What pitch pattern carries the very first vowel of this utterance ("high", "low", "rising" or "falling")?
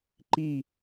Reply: falling